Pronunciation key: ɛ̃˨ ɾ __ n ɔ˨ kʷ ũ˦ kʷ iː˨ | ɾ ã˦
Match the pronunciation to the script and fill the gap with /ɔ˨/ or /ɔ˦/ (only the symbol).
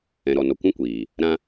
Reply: ɔ˨